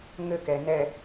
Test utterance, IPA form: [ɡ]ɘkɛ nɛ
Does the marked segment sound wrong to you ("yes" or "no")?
yes